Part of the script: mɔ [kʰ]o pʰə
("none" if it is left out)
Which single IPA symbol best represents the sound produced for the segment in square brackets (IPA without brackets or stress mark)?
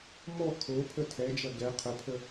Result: kʰ